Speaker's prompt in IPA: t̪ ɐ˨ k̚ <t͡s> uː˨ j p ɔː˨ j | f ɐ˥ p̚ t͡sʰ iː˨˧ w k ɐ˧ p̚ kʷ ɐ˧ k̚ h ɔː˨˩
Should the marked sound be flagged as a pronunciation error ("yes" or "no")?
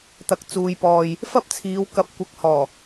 no